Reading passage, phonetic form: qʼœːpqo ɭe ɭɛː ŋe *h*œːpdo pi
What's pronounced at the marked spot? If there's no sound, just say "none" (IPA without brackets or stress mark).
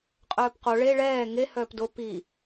h